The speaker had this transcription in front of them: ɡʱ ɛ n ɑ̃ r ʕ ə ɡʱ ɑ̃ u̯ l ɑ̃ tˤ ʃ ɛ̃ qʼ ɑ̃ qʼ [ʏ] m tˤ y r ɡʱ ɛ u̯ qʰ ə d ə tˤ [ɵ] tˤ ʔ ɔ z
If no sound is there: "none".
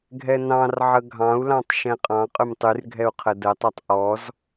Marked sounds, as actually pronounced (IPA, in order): ʏ, œ

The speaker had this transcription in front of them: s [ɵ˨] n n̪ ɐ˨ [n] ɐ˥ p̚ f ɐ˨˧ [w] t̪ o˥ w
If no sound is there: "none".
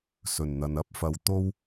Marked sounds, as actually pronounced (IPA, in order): ɵ˨˩, n, w

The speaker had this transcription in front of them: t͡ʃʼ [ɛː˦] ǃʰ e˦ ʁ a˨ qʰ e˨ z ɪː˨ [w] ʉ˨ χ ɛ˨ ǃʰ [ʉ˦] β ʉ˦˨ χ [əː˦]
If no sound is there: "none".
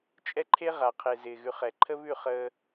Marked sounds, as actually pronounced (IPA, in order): ɛ˦, ɣ, ə˦, əː˦

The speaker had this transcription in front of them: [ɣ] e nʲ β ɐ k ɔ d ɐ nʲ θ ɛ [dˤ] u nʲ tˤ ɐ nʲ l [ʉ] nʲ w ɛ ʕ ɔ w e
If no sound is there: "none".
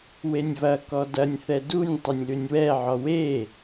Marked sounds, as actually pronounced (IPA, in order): w, d, ʉ

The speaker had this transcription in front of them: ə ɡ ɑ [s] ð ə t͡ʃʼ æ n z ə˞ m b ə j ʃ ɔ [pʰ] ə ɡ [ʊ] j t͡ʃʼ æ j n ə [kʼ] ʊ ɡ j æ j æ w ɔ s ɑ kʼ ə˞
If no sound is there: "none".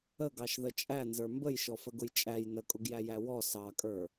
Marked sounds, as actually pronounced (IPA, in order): ʃ, f, ʊ, kʼ

